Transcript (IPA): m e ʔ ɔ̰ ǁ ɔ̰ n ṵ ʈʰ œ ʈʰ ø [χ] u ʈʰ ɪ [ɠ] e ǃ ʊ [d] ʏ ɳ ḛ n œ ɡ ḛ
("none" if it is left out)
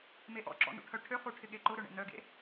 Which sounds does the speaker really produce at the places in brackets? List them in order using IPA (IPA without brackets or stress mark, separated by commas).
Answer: χ, ɠ, ɾ